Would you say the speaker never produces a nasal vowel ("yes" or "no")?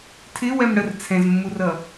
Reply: no